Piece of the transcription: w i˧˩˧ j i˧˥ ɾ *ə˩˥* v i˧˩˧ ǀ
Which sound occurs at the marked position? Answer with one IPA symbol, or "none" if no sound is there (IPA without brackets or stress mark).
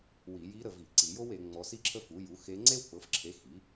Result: ə˦˨